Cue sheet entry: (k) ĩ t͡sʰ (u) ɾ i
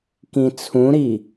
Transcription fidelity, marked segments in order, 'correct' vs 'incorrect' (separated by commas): correct, incorrect